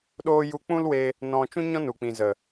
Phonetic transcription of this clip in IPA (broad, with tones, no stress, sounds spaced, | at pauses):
ɗ oː˧ j u˧ k͡p ũ˦ l w e˧ | n ɔ̃˧ t͡ʃ ũ˦ ɲ ɔ̃˦ n u˨ k͡p ĩ˨ z ə˨